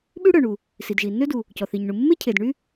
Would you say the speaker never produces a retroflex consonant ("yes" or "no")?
no